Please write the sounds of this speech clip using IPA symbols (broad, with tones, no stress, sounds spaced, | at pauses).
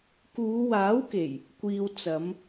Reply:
k uː˨˧ w aː˨˥ w k e˨˩ j | kʷ iː˨ w t͡s ɐ˨˧ m